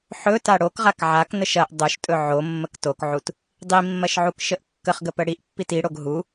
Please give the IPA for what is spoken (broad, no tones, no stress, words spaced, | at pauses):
ħɵta ɽokʁak ʕaknəʃ ɐʔ dˤoʃtʼɵ ʕomːək tokʕut | dˤimːɐʃʕukʃəʔ kːəχɡəpə ɽiʔpːit iɽoɡ ɦu